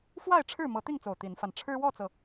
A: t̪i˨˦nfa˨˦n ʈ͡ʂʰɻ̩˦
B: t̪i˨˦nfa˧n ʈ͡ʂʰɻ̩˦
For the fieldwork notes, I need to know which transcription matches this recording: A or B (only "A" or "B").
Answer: B